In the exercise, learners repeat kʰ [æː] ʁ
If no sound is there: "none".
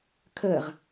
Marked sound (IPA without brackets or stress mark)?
əː